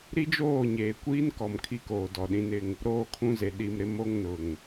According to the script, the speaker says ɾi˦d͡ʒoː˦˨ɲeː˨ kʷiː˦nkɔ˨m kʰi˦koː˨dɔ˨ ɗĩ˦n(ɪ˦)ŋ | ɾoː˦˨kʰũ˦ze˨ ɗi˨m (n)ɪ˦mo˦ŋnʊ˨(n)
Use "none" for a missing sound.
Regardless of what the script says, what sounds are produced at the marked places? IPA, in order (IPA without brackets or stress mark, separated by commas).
ɪ˦, ɾ, ŋ